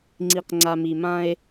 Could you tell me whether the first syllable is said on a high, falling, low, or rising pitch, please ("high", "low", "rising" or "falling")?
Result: low